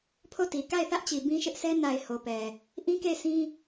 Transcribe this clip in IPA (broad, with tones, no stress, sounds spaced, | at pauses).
pʰ o˦˨ t i˨ k a˦˨ ɪ̯ θ ä˦ ʔ t͡ɕ i˨ b ĩ˦ ʃ ɪ˦ ʔ sʰ ɛ˦ n a˨ ɪ̯ h o˨ p ɛ˨ | ʔ ĩ˦ k e˦˨ ɪ̯ sʰ ĩ˦